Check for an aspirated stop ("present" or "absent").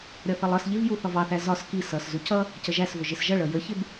absent